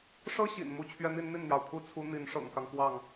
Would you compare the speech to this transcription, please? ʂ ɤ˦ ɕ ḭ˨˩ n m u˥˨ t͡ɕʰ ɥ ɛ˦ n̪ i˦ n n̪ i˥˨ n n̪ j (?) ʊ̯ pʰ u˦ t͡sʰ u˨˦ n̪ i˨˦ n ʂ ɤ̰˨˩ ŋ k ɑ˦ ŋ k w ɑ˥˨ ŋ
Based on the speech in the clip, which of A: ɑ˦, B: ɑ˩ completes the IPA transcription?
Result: B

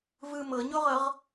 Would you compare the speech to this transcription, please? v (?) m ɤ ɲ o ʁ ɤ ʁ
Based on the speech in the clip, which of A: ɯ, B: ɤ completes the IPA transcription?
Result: A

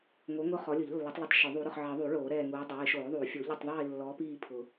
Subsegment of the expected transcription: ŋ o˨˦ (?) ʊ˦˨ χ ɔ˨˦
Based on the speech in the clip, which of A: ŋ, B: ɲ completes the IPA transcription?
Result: A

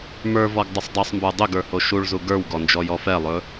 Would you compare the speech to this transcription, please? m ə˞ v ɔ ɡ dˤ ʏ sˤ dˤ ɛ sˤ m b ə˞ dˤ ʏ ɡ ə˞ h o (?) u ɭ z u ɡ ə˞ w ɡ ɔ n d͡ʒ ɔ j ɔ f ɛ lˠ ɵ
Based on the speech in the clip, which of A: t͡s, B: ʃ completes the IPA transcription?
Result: B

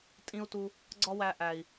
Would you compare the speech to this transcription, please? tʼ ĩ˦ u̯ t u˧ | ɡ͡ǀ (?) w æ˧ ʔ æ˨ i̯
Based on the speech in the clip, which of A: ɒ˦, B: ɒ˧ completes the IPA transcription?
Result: A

